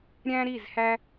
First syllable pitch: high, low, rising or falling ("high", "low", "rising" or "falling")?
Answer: high